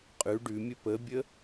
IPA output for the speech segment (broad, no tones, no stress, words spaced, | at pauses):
qʼʉ ɖʉmʲə pəbʲə